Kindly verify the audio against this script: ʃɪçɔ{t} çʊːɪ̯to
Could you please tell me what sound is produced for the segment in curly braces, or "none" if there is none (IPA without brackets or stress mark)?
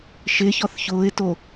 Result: θ